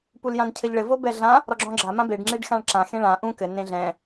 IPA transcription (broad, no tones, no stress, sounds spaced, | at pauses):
p u l j ã n cʰ ɘ ʎ ɭ ɘ v o b ɛ ɮ ã | ɾ ɔ ɡ͡ǁ ɔ̃ ɡ͡ǁ a m ã b e ɖ ŋ͡ǁ e ɖ x ã ɭ ǁ ã x ẽ ɭ ã ʔ ũ k ɘ n ẽ ɮ ɛ̃